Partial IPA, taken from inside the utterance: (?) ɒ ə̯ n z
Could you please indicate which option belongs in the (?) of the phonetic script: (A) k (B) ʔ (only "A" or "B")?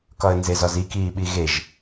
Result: A